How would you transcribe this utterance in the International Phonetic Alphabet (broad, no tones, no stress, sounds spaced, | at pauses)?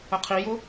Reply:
ə qʰ i j ʊ